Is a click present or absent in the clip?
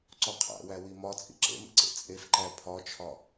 present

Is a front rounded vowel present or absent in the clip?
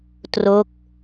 absent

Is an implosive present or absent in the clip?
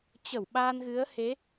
present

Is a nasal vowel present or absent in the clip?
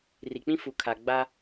present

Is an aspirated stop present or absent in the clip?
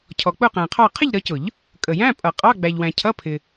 present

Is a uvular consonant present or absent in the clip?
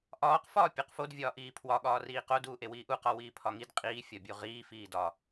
present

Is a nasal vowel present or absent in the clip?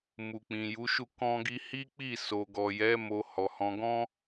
present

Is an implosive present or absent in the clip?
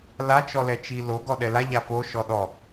present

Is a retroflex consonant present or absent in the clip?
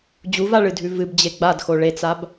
present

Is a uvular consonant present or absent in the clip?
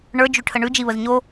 absent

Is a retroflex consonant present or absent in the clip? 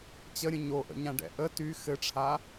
present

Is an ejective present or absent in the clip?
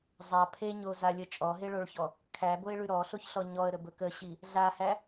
present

